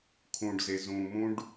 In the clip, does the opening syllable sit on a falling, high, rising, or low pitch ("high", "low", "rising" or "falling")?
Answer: low